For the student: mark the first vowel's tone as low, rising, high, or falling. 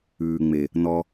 low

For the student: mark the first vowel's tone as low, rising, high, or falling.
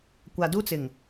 low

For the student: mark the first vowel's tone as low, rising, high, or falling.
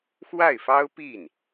falling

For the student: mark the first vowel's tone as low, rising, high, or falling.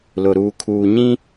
low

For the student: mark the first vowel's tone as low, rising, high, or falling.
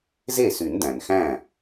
falling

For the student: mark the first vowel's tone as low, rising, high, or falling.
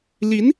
rising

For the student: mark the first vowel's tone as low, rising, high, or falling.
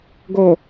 low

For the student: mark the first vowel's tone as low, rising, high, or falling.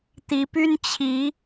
rising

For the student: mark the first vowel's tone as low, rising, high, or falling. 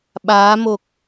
rising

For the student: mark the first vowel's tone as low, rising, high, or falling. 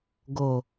low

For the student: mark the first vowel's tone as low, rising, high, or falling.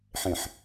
low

